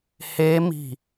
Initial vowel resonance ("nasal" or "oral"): oral